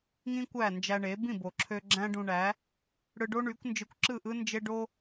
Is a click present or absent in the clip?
present